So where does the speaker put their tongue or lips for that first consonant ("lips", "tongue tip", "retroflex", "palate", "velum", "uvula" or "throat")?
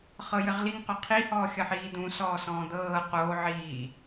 uvula